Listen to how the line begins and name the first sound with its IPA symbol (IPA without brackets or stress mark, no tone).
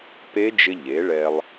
p